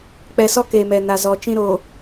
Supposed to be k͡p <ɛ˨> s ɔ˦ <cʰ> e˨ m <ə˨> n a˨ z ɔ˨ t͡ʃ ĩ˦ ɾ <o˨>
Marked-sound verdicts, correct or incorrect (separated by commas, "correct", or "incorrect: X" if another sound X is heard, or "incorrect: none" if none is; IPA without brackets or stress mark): correct, incorrect: k, incorrect: ɛ˨, correct